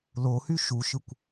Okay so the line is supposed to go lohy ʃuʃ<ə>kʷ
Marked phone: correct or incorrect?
incorrect